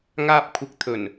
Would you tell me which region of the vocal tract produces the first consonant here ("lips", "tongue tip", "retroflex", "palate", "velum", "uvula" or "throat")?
velum